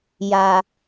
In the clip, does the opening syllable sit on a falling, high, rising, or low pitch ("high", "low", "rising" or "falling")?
low